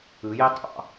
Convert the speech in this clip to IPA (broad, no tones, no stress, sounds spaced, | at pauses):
ɯ j e tˤ ɑ̰